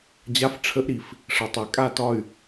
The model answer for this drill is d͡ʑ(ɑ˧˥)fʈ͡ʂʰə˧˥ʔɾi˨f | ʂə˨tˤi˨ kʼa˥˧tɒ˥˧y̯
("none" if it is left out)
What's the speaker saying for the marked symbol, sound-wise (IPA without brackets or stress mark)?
a˧˥